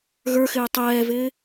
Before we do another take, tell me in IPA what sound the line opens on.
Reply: ɣ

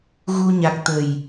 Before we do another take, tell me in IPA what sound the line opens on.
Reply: ɣ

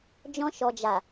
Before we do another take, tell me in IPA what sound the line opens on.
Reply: d͡ʒ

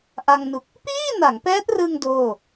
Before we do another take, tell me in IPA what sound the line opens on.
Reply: ʔ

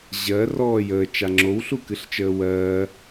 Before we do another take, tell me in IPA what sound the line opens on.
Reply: ʑ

